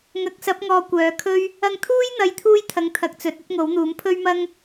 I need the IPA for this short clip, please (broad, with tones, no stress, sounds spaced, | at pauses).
ŋ ɐ˨˥ k̚ s ɐ˨˥ p̚ ŋ ɔː˨ kʷ œː˨˧ kʰ ɵ˥ ɥ | ɐ˧ ŋ t̪ʰ uː˥ j n̪ ɐ˨ j t̪ʰ uː˧ j t̪ʰ ɐ˨˥ ŋ t̪ʰ ɐ˨ k̚ t͡s ɵ˨˥ t̚ ɵ˥ t̚ ŋ o˨˥ w n̪ uː˨˥ m pʰ ɵ˥ ɥ m ɐ˥ ŋ